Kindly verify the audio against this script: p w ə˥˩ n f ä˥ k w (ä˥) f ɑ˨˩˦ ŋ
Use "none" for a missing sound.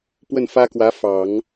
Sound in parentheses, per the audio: ä˧˥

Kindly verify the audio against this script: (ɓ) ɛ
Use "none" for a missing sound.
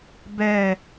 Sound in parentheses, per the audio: b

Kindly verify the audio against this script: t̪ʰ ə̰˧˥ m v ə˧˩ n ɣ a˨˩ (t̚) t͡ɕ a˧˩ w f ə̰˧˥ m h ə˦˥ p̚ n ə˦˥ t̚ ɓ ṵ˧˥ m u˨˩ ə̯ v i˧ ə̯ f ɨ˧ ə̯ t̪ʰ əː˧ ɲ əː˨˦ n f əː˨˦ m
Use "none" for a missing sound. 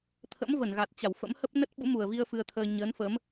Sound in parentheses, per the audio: t̚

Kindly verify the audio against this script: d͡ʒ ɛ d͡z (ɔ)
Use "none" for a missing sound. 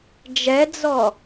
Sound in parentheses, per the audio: ɔ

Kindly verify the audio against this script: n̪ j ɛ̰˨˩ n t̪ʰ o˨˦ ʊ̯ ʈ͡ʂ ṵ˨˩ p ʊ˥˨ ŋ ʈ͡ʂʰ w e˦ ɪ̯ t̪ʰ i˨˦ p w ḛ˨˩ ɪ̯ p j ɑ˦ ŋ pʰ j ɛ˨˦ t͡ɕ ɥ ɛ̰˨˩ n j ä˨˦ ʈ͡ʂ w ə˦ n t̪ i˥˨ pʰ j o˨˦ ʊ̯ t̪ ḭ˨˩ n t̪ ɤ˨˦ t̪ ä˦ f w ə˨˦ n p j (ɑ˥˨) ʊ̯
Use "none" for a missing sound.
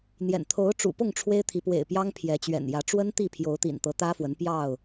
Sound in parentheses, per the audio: ɑ˥˨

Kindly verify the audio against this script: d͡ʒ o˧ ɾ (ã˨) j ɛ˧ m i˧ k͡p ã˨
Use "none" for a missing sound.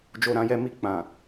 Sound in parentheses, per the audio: ã˧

